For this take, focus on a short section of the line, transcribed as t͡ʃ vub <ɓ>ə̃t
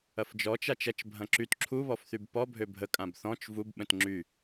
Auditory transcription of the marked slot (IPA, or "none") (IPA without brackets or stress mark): ɓ